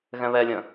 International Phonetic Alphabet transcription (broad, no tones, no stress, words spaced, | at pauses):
ɣɛ̃βɛlʲə̃